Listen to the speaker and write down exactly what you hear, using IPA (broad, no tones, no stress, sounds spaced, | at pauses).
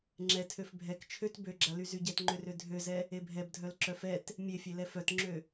ŋ͡ǁ ɛ tʰ ø f bʱ ɛ k t͡ʃʰ ø t b ø ɡ͡ǁ a l y z y ɟ ɛ t ŋ͡ǃ ø r ø dʱ ø z ɛ | e bʱ ɛ b dʱ œ l ǁ œ f ɛ t | mʲ e fʲ e l ɛ f œ t ŋ͡ǁ ø